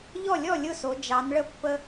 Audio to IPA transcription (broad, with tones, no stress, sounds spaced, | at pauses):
ʎ ɔ˥˩ lʲ ɔ˥˩ lʲ ʊ˥˩ s o˩˧ d͡ʒ ɑ˩˧ n ɭ ə˥˩ pː ə˦